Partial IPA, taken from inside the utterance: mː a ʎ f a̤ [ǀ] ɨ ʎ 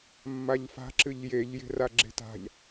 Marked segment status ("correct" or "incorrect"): incorrect